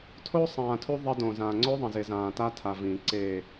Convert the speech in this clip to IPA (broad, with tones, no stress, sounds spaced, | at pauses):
tʰ o˦ sˤ ãː˨ tʰ u˦ ðˤ ɐ˦ d õ˨ z ãː˨ ŋ͡ǀ o˦ ðˤ ɐ̃˨ z e˨ z ãː˨ t a˦ tʰ a˨ v ĩː˨ ǀ e˦˨